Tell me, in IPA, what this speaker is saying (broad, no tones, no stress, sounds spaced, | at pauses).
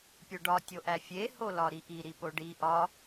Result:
pʲ o ɖ ɒ tʲ o ʔ æ fʲ e h o l ɒ ɾ i ʔ i ɾ i p o ɖ i ʔ ɒ